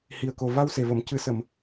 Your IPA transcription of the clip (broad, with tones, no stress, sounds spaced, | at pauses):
h i˨˩ ə̯ k o˨˩ v a˧ w s e˨˩ v ə˨˩˨ m c ɨ˨˩˦ s ə˨˩˨ m